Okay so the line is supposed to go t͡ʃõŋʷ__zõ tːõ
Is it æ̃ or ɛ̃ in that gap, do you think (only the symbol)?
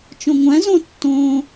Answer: æ̃